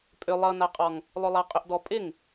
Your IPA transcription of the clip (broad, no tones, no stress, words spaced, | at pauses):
pʼʏ lˠʌnaqʼɔŋ | lˠʊlˠaqʼʏʔdɔ pʼɪŋ